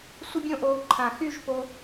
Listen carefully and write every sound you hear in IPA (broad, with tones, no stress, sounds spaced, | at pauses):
sʷ ɪ˥ bʲ õ˥˧ ʔ oː˧ ǃʰ ã˧˩ x y˥˧ ʒ p o˧